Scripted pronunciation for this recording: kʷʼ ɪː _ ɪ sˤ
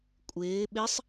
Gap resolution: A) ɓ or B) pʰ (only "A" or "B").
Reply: A